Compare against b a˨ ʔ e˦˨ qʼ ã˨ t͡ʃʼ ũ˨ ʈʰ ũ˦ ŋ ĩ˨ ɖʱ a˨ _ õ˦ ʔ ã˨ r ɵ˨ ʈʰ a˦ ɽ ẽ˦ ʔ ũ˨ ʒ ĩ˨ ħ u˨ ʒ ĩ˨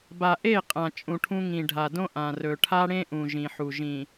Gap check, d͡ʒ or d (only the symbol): d